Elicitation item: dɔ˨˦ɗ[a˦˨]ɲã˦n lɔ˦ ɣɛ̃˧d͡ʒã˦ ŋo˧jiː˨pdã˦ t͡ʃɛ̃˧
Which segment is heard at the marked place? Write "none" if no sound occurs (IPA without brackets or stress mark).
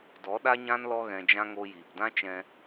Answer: a˦